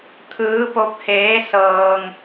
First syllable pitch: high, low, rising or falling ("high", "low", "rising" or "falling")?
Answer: rising